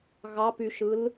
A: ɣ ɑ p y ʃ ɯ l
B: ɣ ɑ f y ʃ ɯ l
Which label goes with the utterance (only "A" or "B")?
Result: A